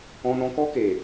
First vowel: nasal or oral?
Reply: nasal